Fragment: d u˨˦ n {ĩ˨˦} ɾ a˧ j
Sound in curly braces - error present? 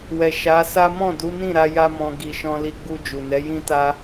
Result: yes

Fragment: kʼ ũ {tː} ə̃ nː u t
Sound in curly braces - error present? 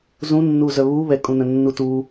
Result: yes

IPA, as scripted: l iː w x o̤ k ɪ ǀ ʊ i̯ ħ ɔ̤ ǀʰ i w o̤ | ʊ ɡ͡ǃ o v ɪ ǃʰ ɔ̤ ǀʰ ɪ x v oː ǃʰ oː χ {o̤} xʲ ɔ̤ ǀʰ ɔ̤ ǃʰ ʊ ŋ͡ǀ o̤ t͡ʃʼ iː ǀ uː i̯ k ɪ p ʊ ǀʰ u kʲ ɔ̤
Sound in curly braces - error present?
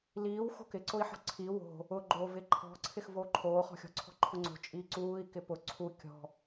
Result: yes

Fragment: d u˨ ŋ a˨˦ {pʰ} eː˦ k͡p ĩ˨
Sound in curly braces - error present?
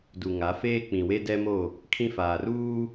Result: yes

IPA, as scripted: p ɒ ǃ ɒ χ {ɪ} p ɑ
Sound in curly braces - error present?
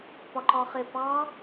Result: no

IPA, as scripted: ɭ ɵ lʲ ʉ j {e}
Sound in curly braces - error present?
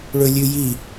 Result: yes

